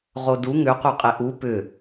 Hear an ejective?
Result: yes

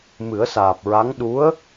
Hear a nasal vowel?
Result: no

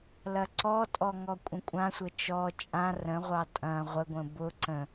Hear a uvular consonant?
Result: yes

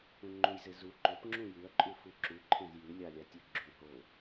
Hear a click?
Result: yes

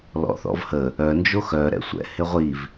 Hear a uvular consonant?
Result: yes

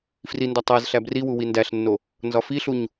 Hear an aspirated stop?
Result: no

